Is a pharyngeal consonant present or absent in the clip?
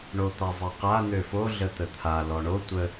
absent